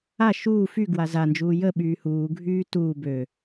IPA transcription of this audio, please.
a ʃuː fy ɡwaza nd͡ʒuːjə ɓyːhuː ɡʱyːtuː bø

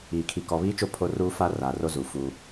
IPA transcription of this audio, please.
iː˨kʰi˨ kɔ˨βiː˦t͡ʃo˦˨ pʰo˦ruː˦ fa˦ra˨ ro˦zuː˨ fuː˦

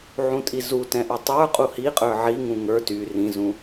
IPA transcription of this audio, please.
ʕũtʼizu tɛ̃ʔʉtˤə˞ qʼuhiqʼə˞ ʕiŋũ ŋə˞ ty rĩzũ

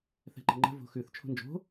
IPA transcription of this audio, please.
θɛ̤ǃə̤ŋ͡ǃə̤ vo̤xʉθ t͡ʃʰo̤nd͡ʒo̤

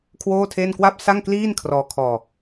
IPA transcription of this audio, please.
kʰwoː˥˩tʰe˥˩n kwa˥˩p̚sa˥˩ŋ kliː˥˩nkʰrɔː˧kʰɔː˧

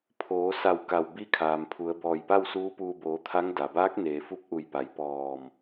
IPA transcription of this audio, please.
pʰoː˩˧sa˧˩w ka˧˩wbi˧˥kʰaː˩mpʰu˩˧ə̯ bɔː˧˩jpa˥˨wsuː˧˥puː˧ boː˩˧t̪ʰa˧˥ŋ da˩baː˧˥k̚ neː˩ fu˧˥p̚ʔu˧˩jpa˩˧j pɔː˧˩m

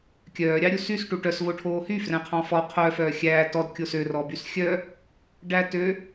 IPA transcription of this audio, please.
kʲœː ɾʲɑɾʲusys ʈuʈœs voʈʰoːhy frɛ̃qʰɑ̃fɔ qʰœ fœːxʲæː tɔd kʲosø rɔbysxʲœ | ɖætø

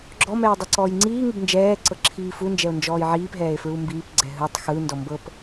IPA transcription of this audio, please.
ɡ͡ǁɔmɛː dˤɤǀɔːjŋ͡ǀiːŋub nd͡ʒɛːǀɤ ǁʰiːfund͡ʒɛo̯ nd͡ʒɔːjʕiːpɦɛːe̯ fɹumbiːpɡ͡ǀɛ ɦɯtˤ xɯndɔ mbɤp

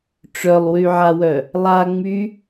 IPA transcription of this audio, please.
ʈ͡ʂœlˠwyʕawœ | lˠaŋ͡my

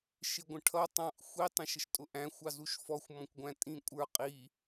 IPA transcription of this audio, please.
ʃɪɡʷə̃ʈʰʌ tˤɑ̃ʔ xʷi tˤə̃ʃəʃtʼʊʔæ̃ xʷɑzuʃfɔxʷ mɔ̃kʷɡʷæ̃tʼĩkʷʼə˞ qʼi

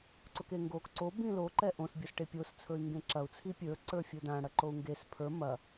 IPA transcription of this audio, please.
ǀʊkeŋɡok ǀo bĩlo ǃɛʔõs bʲosʈepʲos t͡sʰɵi̯ŋɡẽǁɐu̯ t͡sʰipʲə˞ ǀə˞fʲʊdã ɽɐǃou̯ŋɡes pʰə˞ mɐ

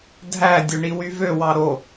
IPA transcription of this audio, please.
dʱæ dʲøɳiwyvø wɑɾo

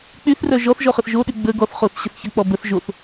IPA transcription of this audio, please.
k͡pyθrœ ʒɔθʒɔχəθ ʒoɗy ɡ͡bə ɡɔθ χoθɕəθçə k͡pɔbəθ ʒoθ

